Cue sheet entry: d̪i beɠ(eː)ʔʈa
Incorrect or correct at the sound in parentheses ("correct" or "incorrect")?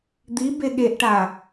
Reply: incorrect